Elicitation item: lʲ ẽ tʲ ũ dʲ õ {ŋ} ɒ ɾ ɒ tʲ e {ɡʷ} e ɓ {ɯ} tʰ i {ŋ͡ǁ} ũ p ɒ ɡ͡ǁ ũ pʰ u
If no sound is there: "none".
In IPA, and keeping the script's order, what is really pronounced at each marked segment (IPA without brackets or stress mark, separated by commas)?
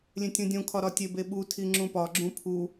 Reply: kʰ, b, u, ŋ͡ǁ